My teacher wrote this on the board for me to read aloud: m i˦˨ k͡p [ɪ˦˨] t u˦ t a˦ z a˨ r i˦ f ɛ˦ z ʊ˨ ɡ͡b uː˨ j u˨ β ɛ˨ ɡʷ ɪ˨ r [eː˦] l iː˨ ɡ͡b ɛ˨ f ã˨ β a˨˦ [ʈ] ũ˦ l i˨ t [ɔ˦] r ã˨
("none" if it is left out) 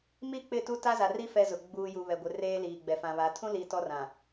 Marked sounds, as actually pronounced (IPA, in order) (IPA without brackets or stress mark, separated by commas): ɪ˦˨, eː˦, tʰ, ɔ˦